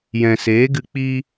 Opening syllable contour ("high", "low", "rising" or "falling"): low